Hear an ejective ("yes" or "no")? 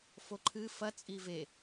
yes